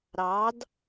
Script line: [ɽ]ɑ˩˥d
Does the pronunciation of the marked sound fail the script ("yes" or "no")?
yes